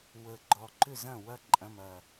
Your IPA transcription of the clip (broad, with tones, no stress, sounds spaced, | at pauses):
w ə˧˩ ɡ͡ǃ ɔ˧˩ ǃ ʏ˥˨ z ɐ̃˥˨ w ɐ˥ ǃʼ ɐ̃˧˥˧ m ɐ˧˩